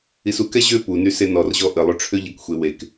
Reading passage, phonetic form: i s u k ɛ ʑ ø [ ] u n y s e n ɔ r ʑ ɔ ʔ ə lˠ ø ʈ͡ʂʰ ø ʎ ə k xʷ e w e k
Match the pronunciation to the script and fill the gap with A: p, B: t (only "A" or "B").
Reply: A